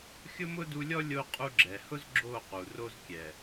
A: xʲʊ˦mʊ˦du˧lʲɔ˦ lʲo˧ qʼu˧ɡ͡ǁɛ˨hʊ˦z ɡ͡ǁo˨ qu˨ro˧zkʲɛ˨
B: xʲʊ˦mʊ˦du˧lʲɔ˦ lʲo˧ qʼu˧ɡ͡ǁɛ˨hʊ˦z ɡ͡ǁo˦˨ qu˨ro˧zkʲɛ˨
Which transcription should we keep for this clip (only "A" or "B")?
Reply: B